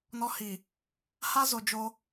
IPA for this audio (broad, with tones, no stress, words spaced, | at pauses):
nɔ˦ hi˨ | ha˦zo˨ d͡ʒo˦